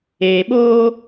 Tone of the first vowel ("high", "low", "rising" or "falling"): low